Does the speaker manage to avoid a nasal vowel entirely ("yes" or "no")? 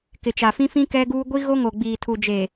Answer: no